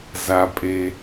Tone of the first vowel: high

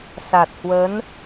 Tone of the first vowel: low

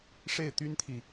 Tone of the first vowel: falling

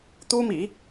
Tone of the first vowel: high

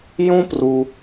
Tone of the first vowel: high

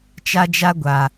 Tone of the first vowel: high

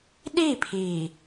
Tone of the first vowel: falling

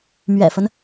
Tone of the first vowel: low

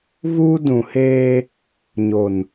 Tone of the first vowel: high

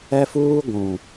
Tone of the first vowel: high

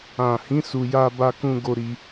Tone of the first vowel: low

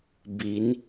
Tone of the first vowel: rising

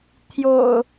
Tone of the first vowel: low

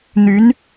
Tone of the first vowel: rising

